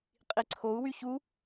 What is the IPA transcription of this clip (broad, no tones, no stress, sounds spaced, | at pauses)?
qʼ i ǀʰ o u̯ w y ç u